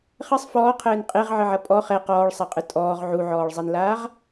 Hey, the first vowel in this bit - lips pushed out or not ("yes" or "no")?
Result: no